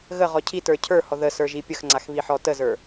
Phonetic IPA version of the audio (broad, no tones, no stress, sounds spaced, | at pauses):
ɣ ə ʁ ɔ cʰ i t ə˞ cʰ ə˞ h ɔ ð ə s ə˞ ʒ i pʲ ə x ŋ͡ǀ a x β i ħ ɔ t ə z ə˞